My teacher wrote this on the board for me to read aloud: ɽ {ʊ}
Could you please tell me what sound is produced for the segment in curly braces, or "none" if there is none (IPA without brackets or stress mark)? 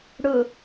ʊ